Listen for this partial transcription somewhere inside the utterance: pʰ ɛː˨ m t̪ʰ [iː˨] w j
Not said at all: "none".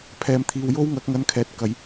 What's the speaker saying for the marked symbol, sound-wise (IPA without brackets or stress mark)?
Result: iː˨